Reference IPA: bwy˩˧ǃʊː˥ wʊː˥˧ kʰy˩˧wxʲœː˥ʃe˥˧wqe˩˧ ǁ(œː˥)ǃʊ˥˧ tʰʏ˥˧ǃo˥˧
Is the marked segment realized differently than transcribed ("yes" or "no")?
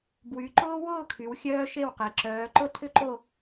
yes